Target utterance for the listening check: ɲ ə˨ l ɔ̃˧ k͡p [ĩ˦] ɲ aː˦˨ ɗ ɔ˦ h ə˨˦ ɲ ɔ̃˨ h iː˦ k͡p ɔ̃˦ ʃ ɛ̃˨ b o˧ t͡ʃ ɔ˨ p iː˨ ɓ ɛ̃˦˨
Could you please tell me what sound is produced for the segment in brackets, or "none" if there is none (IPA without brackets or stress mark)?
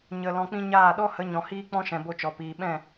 ĩ˦